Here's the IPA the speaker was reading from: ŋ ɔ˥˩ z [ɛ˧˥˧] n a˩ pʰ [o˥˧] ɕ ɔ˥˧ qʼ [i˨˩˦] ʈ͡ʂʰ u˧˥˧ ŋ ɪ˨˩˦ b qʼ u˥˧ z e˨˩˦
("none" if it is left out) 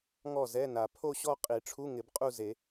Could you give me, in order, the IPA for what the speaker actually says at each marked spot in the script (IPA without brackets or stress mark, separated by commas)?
ɛ˧˥˧, o˥˧, i˨˩˦